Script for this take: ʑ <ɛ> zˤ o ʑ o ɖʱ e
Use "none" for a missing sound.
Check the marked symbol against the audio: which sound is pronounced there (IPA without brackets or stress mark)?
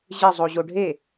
ɘ